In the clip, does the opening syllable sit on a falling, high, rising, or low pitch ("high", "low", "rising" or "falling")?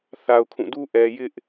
high